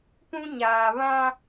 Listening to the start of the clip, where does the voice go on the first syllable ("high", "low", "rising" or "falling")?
high